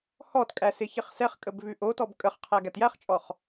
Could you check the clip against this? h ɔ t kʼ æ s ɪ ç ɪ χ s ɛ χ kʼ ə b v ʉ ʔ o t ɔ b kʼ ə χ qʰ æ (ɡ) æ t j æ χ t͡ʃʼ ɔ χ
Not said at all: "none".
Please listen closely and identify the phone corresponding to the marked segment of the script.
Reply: ɡ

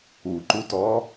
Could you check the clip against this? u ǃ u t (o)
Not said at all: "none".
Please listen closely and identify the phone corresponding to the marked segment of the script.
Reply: ɔ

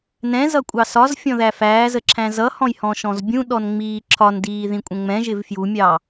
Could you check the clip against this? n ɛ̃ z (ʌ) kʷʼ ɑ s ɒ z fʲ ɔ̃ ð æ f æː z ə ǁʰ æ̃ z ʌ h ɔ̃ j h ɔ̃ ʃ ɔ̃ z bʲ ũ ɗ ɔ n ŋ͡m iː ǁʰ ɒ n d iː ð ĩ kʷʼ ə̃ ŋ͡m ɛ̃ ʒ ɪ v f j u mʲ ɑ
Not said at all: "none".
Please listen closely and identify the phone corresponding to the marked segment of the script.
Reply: ʌ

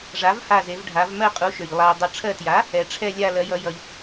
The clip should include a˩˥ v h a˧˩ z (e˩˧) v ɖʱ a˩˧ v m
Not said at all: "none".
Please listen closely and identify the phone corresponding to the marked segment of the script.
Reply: e˩˧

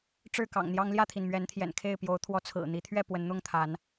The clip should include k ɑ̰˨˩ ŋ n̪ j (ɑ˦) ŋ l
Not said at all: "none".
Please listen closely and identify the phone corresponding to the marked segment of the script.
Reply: ɑ˦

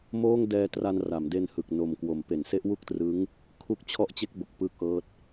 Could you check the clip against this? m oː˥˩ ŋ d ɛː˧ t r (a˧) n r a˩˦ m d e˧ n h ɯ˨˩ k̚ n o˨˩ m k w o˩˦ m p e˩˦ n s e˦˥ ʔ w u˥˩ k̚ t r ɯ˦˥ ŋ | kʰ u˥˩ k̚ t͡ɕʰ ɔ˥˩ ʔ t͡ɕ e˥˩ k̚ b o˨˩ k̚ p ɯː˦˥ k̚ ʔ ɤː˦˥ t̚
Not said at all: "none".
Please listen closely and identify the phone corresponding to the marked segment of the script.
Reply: a˧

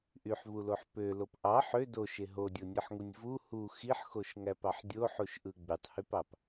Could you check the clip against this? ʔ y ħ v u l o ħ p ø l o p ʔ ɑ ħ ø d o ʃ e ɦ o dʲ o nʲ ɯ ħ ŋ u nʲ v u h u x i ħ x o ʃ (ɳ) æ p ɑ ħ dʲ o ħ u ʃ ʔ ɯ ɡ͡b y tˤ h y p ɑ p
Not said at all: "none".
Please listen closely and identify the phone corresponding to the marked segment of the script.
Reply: ŋ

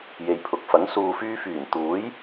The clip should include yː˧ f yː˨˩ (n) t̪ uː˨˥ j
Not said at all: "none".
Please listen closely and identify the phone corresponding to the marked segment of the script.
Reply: n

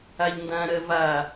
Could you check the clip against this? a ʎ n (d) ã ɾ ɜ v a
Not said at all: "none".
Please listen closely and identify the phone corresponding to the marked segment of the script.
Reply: d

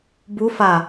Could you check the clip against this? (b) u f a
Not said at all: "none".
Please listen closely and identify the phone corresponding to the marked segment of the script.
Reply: b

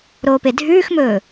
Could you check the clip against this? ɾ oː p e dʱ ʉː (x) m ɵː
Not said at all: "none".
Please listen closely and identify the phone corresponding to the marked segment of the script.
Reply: x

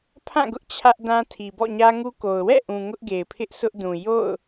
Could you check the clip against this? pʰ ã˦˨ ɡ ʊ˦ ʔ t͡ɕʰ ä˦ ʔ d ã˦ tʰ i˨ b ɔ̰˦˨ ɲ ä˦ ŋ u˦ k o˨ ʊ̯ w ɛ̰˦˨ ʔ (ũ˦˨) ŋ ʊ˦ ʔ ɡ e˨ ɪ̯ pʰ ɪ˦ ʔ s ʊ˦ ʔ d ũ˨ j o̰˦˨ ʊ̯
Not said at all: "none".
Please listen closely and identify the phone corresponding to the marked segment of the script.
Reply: ũ˨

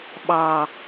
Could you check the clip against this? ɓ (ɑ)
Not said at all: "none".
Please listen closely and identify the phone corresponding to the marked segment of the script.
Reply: ɑ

